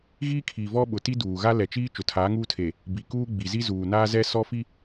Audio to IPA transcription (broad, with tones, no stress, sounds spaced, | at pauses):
ɣ iː˦ kʰ iː˨ v ɔ˦ ɓ ʊ˨ t i˦ d uː˨ ɣ a˦ l ɛ˨ t͡ʃ iː˦ t͡ʃ ʊ˨ tʰ aː˨˦ ŋ uː˦ tʰ e˨ | b i˨ k uː˦ ɡ͡b i˨ z i˦ z uː˨ n aː˦ z ɛ˦ s ɔ˦ f i˦